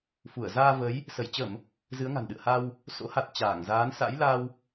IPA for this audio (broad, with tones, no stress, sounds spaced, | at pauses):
f u˧˩ ə̯ z aː˧ v ə˨˦ j | s ə˧˩ j t͡ɕ ə˧˩˨ m | z ɨ˨˦ ə̯ ŋ a̤˨˩ n ɗ ɨ̰˧˨ ə̯ h a˧ w | s o̰˧˥ h a˨˩ t̚ t͡ɕ aː˧˩ ŋ z aː˨˦ n s a̰˧˥ j l a˧ w